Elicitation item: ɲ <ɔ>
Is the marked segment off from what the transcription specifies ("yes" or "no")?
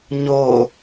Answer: yes